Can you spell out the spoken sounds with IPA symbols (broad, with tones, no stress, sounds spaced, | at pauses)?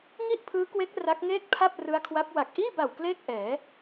ŋ i˥˩ ʔ pʰ ɯː˦˥ k w e˦˥ k̚ r a˦˥ k̚ ŋ eː˥˩ k̚ pʰ a˥˩ p̚ r ɯ˦˥ a̯ kʰ w a˦˥ p̚ w a˨˩ k̚ ʔ iː˥˩ b a˨˩ w k l eː˥˩ k̚ ʔ ɛː˩˦